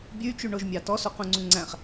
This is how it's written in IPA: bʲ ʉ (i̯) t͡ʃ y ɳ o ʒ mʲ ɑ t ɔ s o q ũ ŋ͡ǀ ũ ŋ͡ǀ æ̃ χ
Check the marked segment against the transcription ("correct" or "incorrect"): incorrect